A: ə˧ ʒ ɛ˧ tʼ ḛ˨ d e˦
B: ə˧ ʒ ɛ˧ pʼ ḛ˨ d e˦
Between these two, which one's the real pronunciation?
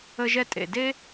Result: A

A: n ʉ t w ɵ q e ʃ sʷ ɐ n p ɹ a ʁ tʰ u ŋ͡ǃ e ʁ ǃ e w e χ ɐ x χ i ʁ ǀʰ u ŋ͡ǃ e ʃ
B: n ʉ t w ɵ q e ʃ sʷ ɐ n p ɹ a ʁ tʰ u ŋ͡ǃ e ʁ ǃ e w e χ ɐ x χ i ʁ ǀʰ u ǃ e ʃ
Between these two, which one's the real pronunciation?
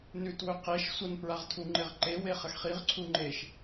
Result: A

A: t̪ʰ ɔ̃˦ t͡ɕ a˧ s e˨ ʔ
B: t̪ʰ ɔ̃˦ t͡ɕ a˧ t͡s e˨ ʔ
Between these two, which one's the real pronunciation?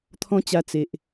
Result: B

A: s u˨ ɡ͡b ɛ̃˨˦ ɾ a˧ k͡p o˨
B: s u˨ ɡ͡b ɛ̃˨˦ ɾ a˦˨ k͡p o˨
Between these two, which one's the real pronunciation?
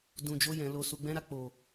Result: B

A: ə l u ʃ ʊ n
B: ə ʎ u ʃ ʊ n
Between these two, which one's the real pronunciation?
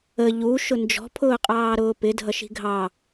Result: B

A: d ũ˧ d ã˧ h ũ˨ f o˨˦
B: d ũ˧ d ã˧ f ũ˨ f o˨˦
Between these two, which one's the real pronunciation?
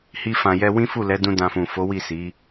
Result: B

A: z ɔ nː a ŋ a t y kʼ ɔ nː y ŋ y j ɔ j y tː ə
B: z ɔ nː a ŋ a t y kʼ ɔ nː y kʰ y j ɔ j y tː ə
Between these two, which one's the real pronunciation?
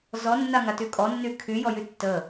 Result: B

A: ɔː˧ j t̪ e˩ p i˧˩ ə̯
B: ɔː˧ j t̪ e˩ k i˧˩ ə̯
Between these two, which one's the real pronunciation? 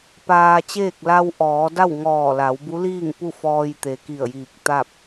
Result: B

